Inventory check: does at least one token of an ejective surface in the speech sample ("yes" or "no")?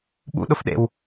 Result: no